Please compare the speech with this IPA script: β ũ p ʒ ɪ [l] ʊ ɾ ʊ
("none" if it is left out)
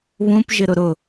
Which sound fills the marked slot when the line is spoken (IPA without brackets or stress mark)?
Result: ɾ